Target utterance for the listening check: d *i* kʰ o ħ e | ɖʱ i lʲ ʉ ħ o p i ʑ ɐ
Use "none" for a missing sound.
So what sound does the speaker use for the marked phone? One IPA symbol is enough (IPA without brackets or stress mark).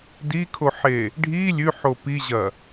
i